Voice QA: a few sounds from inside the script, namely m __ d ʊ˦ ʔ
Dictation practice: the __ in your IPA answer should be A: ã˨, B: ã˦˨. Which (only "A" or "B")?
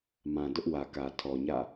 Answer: A